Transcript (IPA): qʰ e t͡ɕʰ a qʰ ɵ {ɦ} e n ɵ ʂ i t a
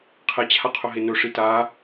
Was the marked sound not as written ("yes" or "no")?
no